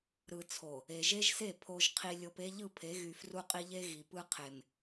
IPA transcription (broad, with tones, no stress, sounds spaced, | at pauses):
ɾ ɯ˨ t͡sʰ o˨ | e˨ ʒ e˦ ʒ s e˦˨ pʰ o˨ ʒ qʰ i˨ lʲ o˨ p e˦ ʎ ɯ˦˨ pʰ e˨˦ ɣ y˨ f r u˦ qʼ i˦ ʎ e˦ ɣ i˨ p ɯ˦ qʰ e˨ m